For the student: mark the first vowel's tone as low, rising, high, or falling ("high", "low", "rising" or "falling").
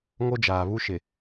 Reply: high